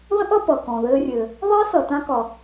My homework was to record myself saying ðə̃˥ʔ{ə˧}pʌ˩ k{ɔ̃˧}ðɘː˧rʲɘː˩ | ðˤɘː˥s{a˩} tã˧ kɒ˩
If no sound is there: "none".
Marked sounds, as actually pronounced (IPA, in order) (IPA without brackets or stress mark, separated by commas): ʌ˧, ɔ̃˩, ʌ˩